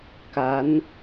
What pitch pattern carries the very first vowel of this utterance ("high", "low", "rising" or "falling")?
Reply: rising